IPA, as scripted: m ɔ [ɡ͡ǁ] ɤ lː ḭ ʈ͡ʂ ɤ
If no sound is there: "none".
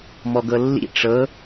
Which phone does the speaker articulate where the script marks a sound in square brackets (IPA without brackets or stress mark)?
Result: ɡ